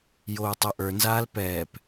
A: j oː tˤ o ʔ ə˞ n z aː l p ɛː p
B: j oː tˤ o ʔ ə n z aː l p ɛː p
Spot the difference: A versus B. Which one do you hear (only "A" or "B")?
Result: A